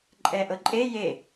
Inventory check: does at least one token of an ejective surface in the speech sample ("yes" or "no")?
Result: yes